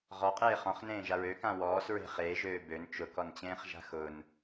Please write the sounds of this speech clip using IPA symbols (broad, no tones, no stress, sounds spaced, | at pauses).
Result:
ʁ ɔ qʼ eː χ ɔ̃ χ n ẽː ʒ a ɹ ø k ã w ɔː s ɹ e̤ χ eː ʒ øː b ø n t͡ʃ ʊ k ɔ n t͡ɕ ẽː χ ʒ a̤ x ʊ n